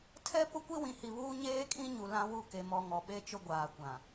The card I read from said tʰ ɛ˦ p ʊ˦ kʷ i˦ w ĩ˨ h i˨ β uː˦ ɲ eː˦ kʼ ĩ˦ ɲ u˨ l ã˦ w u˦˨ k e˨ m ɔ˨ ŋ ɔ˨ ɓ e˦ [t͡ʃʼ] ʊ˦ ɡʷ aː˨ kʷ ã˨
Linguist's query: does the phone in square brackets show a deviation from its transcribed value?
yes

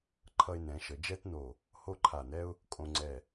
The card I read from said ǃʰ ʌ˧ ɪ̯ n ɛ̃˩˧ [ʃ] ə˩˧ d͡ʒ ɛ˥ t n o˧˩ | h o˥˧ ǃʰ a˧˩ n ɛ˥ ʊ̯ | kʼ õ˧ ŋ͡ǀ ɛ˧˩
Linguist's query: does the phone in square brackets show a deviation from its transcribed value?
no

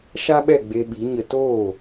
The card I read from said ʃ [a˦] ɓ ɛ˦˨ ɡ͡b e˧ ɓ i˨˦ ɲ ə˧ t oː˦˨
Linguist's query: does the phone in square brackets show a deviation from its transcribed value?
no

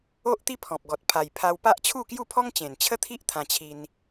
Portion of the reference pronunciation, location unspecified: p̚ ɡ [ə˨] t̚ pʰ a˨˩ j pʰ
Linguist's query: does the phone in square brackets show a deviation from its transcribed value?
yes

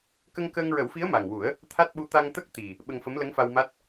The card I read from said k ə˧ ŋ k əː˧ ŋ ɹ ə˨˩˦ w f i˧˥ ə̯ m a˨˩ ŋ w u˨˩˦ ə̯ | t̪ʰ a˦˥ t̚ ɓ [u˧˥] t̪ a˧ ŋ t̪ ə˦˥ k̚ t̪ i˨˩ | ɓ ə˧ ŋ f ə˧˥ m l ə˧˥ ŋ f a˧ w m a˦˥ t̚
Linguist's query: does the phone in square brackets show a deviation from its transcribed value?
no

